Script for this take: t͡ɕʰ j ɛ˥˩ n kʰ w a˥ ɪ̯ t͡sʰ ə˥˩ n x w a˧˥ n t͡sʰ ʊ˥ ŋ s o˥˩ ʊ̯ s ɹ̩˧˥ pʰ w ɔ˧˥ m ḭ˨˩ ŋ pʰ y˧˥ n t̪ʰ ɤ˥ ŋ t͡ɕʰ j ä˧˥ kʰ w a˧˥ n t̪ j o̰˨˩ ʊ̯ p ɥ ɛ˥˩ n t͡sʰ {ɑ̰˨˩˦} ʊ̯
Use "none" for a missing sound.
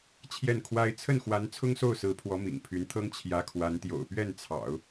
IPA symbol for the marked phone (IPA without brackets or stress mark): ɑ̰˨˩˦